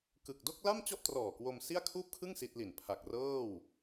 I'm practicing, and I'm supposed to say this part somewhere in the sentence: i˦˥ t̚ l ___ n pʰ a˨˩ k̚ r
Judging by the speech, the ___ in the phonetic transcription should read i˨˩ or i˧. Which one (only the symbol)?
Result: i˨˩